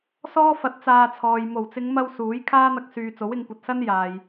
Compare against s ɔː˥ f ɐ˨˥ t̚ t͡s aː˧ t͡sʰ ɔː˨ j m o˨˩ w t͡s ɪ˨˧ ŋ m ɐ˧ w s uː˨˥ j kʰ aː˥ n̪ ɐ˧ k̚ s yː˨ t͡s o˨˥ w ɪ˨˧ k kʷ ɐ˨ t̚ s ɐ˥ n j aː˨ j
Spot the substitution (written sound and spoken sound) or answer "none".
k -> ŋ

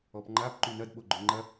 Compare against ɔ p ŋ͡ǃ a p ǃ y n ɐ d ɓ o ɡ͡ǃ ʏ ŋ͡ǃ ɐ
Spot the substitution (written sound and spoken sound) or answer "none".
none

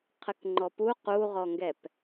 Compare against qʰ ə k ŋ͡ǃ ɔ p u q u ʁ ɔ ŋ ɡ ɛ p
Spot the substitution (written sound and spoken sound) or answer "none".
none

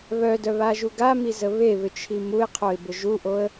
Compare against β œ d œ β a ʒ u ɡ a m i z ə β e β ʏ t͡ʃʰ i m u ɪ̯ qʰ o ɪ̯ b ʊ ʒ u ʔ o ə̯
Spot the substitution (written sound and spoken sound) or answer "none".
none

